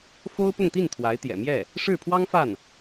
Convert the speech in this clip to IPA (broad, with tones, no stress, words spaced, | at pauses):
fo˥ʊ̯pʊ˥˧ŋt̪i˥˩n t̪ʰwa˧˥ɪ̯t̪jɛ̰˨˩mjɛ˥˩ | ʂɻ̩˥˩pʰwɑ˥ŋ fa˥˩n